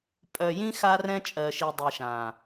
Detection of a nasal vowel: present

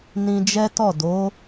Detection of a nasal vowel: present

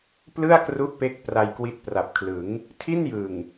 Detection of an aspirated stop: present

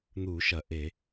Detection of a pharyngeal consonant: absent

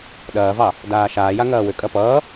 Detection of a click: absent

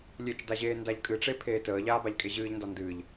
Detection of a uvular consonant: absent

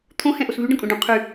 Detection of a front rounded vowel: present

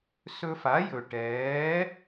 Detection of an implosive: absent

